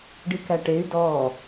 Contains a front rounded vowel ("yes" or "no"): yes